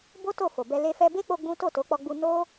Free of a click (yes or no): yes